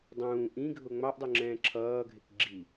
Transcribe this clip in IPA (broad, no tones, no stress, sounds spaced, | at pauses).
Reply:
dˤ ũː ʔ ĩ ɡʱ ʊ ŋ͡m ɑ ʔ dˤ ʊ ŋ͡ǁ ɛ̃ː ǁʰ ʌː ɡʱ ɪ k ɡ͡ǁ i